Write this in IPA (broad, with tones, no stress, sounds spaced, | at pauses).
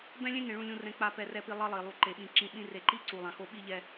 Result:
b ɛ̃˦ lʲ ẽ˦ ŋ ẽ˨ ɭ ũ˨ lʲ ũ˨ r ɛ̃˨ k͡p a˨ p ɛ˨ r ɛ˨ p i˨ lˠ ʌ˦ lˠ i˨ lˠ u˨ ǃ e˨ ɓ ĩ˨ ǁ ĩ˨ ɓ ĩ˦ r e˨ ǃ i˦ ǀ u˨ lˠ ã˨ x o˦ ɓ i˦ ʎ ɛ˦